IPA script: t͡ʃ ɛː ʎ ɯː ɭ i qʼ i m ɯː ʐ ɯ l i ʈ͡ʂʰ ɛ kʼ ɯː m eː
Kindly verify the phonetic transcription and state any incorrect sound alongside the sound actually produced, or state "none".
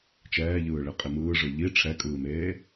l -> ʎ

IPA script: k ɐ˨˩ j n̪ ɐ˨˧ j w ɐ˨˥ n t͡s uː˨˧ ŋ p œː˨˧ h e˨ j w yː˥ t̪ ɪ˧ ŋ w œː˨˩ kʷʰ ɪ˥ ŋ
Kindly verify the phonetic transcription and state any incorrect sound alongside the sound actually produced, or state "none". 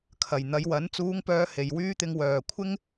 k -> kʰ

